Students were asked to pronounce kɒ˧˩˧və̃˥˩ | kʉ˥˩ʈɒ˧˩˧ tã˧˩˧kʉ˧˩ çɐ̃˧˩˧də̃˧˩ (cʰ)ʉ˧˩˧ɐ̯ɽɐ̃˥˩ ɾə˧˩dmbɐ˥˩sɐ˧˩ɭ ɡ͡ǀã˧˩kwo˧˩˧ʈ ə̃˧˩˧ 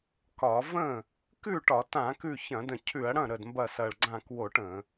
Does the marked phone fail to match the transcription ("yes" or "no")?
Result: no